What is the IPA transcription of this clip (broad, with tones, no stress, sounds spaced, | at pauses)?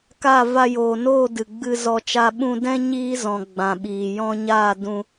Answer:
k a˦˨ v a˧ j oː˨ n oː˦˨ d ɨ˨ ɡ͡b ɨ˧ z ɔ˧ t͡ʃ a˧ ɓ ũ˧ d ɛ̃˦ ɲ iː˦ z ɔ̃˨ ɡ͡b ã˨ ɓ iː˨ j ɔ̃˧ ɲ aː˦˨ d ũ˧